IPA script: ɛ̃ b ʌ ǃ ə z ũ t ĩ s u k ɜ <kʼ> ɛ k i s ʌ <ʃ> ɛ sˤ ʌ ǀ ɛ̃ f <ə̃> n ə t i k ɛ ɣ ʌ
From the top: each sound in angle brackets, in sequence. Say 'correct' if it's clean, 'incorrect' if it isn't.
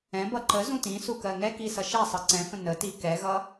incorrect, correct, correct

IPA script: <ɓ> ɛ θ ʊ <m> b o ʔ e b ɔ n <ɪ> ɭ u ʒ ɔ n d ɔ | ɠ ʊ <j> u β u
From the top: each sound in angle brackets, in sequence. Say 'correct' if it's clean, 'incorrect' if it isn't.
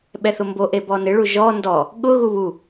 correct, correct, correct, incorrect

